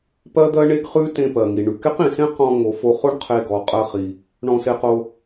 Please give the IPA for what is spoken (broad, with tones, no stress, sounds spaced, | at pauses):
p ɜ˥ d̪ ɜ˥ ɳ e˥ ɡ χ ʉ˥ t ẽ˧ p ɜ˩ ŋ i˩ ɳ ʉ˩ k e˥ q ĩ˩ s ẽ˥ q ɔ̃˧ ŋ o˩ f o˧ χ o˥ ɳ qʰ e˧ ɡ ɔ˩ qʼ ɜ˧ χ i˩ | ɳ ɔ̃˧ s e˧ q o˧